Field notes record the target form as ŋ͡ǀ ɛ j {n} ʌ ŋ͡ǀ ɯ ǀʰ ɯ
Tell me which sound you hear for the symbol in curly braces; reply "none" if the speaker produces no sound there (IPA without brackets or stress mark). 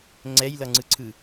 l